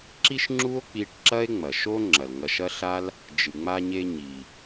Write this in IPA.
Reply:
ǁ i˥ ʃ ŋ͡ǁ u˥ o̯ k͡p i˧ ʈ ǁ ɐ˥ e̯ ŋ͡m ɐ˩ ʃ o˥ ŋ͡ǁ ɐ˩ l ŋ ɐ˧ ʃ ɐ˥ ɬ a˥ l | d͡ʒ ɨ˩ ŋ͡m a˧ ɲ e˧ ɲ i˩

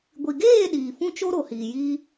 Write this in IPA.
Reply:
ɡʷ i˨ ɡ eː˦˨ ɗ iː˨ f ũ˦ t͡ʃ o˦ ɾ o˨ h iː˨ j iː˦

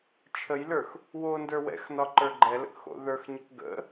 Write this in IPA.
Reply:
t͡ʃʰ ə j l ə˞ x | w o n d ə˞ w ɛ̰ x n ɒ ǃ ə˞ ɡ͡ǃ ɛ l ə̰ k x o̰ ð ə˞ x ɲ ə k ɡ ə̰

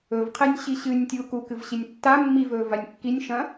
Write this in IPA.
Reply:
ɵ v qʰ e nʲ ɕ i ɕ ɨ nʲ tʲ uː k u k ɨ v ɕ i nʲ tː a mː i v ɵː v a nʲ kː i nʲ ʃ ɐ̃

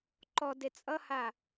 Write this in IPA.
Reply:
ǃ ɔ d e t͡sʼ ʌ h a

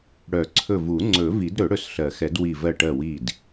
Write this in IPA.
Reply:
ɽ œ˨˩˦ ǀʰ ɵ˧˩ v u˨˩˦ ŋ͡ǀ ɵ˨˩˦ v i˨˩˦ d ɾ ɵ˨˩˦ ɽ ɵ˧˩ s ɬ ɜ˨˩˦ x ɛ˨˩˦ d w i˧˩ v ɜ˧˩ ʈ ɜ˧˩ w i˧˩ d

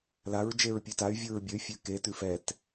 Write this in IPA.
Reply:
l a ɹ d͡ʒ e ɹ pʲ ø t a y̯ vʲ ɯ ɹ bʲ ə y̯ fʲ ø k e t ʉ f ɛ t

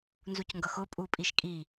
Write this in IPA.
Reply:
n z u c ŋ ɡ ʌ x ʊ pʼ u pʼ i ʃ kʼ i

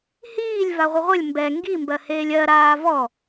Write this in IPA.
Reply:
h iː lʲ v a ʁʷ ə ʁʷ ə lʲ m b ɛ ŋ ɡ i m b ɜ h eː lʲ ɜ ɾ aː v ɔ

